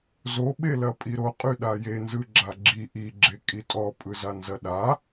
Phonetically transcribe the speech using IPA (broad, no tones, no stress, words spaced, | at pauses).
zoɓelɐ pʼiɾoqʼy ɗajenzɯ ɡ͡ǁaɡ͡ǁi ʔiɡ͡ǁe kʼitʼɔ pʼɯzanzɐɗa